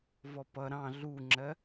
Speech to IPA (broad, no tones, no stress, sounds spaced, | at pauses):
v ɔ p ʌ ɾ ɑ̃ ɮ u ŋ͡ǁ ɜ